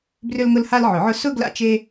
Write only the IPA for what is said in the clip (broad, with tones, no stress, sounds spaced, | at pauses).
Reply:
b r ʏ˥ l ŋ ʊ˥ l h a˥ l ʕ ʊ˨˩˦ ʕ ʊ˥ s ʊ˥ ɡ l a̰˥ t͡ʃ e˥